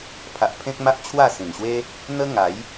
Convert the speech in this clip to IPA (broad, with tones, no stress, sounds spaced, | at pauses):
pʰ a˨ ʔ pʰ ẽ˦ k̚ m a˦ ʔ t͡ɕʰ w a˥˧ s ĩ˨˩ n ɕ w e˦ | n̪ ə˦ ŋ a˨˦ j